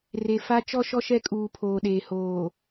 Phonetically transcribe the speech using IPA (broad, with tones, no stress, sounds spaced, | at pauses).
r e˨ f a˦ t͡ʃ ɔ˦ ʃ ɔ˦ ʃ ɛ˦˨ kʼ uː˨ pʰ oː˨ ɗ eː˨ h oː˨